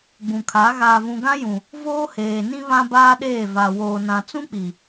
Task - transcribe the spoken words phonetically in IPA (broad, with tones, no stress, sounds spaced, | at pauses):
ɡ͡b ũ˨ kʰ a˨˦ ɣ aː˨ v ũ˨ ɡ ã˦ j ũ˨ | v oː˦ h eː˨ n ĩ˦ β ã˦ b aː˦ ɗ eː˦˨ v a˨ w oː˨ n ã˨ t͡s ũ˦ k͡p i˨